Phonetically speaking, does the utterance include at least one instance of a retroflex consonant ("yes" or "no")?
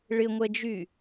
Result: yes